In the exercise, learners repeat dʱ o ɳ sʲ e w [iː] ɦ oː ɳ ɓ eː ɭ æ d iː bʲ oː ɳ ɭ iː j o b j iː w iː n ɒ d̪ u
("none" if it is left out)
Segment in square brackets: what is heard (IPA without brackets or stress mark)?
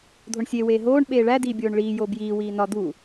eː